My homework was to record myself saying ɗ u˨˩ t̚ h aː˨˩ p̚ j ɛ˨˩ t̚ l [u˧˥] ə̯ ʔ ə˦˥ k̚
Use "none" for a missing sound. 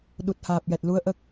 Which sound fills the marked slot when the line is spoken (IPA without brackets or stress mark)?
u˧˥